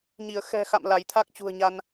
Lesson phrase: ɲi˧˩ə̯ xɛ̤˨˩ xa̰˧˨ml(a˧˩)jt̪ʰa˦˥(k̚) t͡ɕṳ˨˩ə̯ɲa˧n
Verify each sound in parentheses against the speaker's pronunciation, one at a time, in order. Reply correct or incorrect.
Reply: correct, correct

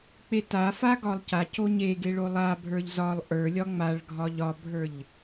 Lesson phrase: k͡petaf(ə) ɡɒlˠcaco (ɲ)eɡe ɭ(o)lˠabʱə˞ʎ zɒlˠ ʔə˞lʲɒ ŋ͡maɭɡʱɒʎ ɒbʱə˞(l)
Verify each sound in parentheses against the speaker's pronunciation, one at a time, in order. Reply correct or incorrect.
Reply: incorrect: a, correct, correct, incorrect: ʎ

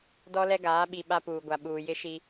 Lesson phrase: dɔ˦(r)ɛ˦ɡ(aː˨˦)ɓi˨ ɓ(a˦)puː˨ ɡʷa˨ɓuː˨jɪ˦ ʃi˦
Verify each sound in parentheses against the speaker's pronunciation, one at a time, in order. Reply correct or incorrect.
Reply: incorrect: l, correct, correct

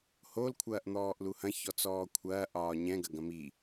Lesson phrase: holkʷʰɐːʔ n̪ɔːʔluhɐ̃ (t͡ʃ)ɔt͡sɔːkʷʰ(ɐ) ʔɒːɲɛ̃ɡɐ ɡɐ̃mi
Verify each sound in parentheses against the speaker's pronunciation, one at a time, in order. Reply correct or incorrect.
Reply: incorrect: ç, incorrect: ɐː

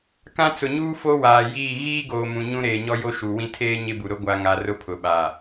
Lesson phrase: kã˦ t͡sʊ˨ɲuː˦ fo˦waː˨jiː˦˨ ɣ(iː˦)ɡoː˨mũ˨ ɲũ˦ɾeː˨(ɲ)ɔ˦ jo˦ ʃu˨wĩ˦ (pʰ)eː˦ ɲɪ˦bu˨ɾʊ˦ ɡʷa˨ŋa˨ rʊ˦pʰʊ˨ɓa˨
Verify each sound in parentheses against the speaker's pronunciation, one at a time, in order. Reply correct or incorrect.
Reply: correct, correct, incorrect: tʰ

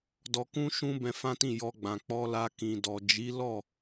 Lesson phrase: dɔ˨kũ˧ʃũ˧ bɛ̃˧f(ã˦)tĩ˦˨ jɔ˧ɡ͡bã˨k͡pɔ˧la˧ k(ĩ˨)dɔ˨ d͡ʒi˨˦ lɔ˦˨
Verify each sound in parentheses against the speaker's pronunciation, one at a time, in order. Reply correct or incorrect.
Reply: correct, correct

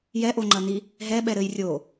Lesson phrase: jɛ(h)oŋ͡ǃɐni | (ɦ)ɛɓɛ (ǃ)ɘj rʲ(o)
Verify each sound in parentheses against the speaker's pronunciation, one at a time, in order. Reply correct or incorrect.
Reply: incorrect: ʔ, correct, incorrect: ɾ, correct

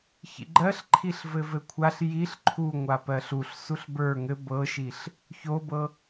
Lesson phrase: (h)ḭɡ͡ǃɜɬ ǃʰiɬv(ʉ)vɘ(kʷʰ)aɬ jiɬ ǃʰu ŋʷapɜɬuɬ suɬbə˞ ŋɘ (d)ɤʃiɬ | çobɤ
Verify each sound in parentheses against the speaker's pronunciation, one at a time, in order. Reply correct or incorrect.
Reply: incorrect: ç, incorrect: ɘ, correct, incorrect: b

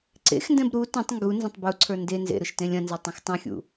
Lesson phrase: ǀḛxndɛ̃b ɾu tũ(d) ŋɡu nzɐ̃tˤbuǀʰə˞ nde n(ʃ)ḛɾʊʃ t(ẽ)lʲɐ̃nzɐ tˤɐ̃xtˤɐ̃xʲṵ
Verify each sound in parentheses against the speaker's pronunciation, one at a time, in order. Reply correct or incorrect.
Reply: incorrect: tˤ, incorrect: z, correct

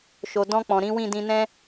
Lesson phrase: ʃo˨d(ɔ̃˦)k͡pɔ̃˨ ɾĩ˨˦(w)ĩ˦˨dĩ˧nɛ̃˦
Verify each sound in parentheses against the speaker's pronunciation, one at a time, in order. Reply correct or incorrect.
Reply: incorrect: ɔ̃˧, correct

